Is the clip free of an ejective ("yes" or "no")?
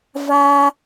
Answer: yes